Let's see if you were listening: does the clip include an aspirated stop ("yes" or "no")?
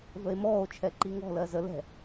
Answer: yes